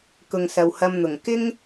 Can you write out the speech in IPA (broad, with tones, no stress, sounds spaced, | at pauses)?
k ʊ˨ ŋ s ɐ˨ w h ɐ˧ m n̪ ʊ˨˩ ŋ k ɪ˥ ŋ